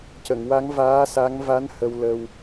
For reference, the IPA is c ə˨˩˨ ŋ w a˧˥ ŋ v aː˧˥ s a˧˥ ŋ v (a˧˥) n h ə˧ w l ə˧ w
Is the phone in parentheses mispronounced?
no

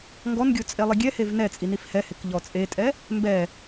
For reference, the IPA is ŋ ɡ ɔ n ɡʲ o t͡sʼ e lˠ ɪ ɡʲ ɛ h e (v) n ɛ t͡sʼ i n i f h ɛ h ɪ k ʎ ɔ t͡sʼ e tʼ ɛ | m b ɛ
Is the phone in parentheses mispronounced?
no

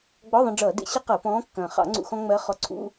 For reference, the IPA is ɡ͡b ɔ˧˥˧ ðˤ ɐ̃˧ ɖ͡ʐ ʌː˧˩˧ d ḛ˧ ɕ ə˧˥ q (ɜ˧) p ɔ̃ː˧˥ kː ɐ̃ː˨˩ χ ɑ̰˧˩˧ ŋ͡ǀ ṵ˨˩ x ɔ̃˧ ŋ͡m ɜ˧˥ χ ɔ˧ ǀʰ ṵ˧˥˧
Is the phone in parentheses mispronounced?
yes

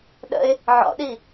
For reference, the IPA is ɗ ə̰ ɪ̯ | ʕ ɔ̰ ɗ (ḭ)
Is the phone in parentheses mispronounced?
yes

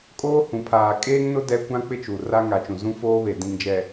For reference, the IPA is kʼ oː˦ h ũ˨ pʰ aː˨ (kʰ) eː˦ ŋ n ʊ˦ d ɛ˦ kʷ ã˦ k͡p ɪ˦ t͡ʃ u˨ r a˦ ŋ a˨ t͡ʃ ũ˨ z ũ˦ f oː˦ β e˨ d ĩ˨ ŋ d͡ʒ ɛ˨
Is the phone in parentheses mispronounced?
yes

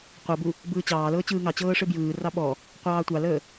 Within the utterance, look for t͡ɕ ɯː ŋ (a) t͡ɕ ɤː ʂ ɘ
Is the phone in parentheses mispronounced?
yes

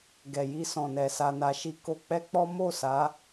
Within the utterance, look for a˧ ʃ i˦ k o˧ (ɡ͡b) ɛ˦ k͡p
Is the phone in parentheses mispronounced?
yes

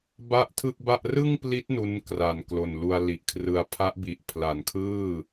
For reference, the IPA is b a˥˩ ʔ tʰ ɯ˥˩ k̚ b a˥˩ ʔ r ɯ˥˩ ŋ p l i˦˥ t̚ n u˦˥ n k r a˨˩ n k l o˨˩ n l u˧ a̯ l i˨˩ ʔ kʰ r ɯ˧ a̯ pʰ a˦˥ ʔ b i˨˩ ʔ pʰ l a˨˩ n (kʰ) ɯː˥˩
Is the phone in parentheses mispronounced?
no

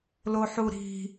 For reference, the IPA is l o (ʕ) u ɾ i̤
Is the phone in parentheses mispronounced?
yes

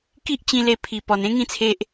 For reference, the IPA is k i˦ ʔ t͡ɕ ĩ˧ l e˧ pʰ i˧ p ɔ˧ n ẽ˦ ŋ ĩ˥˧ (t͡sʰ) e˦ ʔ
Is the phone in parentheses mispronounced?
no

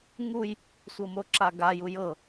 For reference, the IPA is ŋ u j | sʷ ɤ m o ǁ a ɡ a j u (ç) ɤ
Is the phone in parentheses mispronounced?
yes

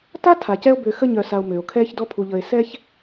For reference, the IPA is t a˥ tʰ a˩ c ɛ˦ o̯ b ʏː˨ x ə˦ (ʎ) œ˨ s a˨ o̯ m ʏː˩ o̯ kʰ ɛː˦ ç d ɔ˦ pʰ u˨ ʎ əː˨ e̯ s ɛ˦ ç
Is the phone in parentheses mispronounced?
yes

